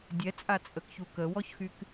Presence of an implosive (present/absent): absent